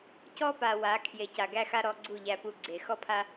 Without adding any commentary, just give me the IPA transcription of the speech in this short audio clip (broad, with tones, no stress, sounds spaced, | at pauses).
c ɔ˦ p a˨ w a˨˦ kʰ j e˨ c a˨ ɡ æ˦ x a˦ ɾ ɔ˧ ɡ͡ǀ u˦˨ ʎ æ˧ p u˧ ɡ͡ǀ e˨ x ɔ˦ pʰ a˦